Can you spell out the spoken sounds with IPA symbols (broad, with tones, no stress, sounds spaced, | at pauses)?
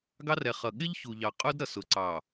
ɡ ɑ˦ r ɛ˨ χ ʌ˨ ɠ ɪ˦ ʎ ç u˨ ʎ ɑ˨ qʼ ʊ˦ d ɾ ʌ˨ s ʊ˨ ǀ ɑ˨